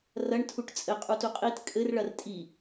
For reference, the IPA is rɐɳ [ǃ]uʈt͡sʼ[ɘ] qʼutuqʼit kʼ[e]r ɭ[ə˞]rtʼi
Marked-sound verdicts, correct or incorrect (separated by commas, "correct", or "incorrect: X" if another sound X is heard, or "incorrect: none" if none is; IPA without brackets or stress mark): incorrect: tʰ, correct, incorrect: ɘ, incorrect: ɐ